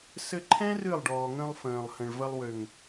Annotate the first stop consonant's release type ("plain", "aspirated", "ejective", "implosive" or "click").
click